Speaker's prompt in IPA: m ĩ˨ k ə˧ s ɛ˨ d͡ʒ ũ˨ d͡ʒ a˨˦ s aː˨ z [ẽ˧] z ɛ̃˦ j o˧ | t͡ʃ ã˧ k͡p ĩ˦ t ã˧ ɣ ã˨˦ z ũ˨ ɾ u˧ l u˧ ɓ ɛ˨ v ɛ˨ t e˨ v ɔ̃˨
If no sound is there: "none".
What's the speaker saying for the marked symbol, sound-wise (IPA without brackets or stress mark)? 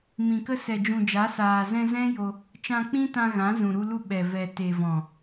ɛ̃˧